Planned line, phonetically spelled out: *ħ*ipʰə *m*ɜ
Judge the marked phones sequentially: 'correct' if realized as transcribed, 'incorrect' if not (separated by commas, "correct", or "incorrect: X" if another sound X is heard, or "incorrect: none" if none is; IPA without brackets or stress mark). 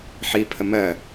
correct, correct